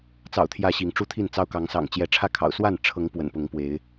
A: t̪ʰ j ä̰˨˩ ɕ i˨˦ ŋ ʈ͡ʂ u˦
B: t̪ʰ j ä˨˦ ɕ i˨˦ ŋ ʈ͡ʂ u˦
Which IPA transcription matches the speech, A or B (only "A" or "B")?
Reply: B